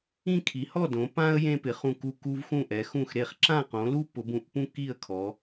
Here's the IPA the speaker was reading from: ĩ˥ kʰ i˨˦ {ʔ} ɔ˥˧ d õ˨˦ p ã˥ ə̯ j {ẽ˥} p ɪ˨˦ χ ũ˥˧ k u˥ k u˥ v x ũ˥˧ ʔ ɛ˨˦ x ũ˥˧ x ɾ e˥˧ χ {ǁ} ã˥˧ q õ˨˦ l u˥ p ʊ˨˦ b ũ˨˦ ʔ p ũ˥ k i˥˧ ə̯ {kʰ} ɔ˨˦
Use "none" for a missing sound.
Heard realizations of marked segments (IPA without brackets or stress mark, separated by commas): h, ẽ˥, ǁ, kʰ